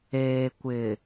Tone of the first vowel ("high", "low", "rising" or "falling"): low